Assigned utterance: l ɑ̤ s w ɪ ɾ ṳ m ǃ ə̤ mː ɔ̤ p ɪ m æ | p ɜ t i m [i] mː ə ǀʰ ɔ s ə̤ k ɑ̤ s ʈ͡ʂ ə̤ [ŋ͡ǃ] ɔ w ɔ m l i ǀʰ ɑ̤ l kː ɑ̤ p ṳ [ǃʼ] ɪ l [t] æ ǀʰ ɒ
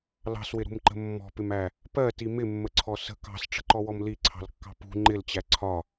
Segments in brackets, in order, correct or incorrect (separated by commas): incorrect, incorrect, incorrect, incorrect